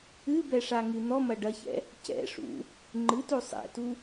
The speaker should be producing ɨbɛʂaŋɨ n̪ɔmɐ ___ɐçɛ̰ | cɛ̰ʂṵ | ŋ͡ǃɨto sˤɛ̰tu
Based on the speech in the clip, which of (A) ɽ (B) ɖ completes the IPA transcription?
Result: B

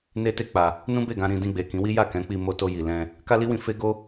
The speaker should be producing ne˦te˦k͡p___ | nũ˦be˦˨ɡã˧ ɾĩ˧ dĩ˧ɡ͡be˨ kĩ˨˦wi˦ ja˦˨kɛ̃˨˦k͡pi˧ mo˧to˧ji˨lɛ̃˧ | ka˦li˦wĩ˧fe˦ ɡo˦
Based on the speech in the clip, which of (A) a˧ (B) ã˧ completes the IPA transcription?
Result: A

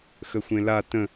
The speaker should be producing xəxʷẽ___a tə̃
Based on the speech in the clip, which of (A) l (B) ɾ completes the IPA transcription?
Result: A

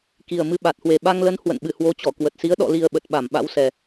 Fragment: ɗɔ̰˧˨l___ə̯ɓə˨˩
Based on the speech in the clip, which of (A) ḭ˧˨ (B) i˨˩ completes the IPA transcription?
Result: B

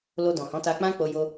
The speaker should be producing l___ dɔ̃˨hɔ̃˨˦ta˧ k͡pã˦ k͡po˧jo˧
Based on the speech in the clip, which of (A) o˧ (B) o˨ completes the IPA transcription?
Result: A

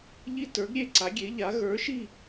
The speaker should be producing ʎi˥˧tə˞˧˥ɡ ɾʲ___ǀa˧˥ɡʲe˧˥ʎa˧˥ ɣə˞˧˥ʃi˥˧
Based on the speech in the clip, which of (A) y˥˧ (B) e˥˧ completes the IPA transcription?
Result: B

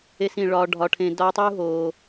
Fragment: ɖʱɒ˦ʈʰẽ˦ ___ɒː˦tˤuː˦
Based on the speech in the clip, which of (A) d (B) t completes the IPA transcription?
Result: A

